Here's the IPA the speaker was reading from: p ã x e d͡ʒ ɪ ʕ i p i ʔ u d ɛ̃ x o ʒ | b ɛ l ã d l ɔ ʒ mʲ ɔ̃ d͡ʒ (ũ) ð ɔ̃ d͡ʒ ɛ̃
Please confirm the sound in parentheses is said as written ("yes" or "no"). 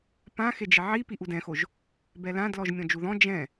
no